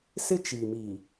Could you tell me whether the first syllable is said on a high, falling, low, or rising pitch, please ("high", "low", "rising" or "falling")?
high